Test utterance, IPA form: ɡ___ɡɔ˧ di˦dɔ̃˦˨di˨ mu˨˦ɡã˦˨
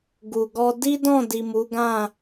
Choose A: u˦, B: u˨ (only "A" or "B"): B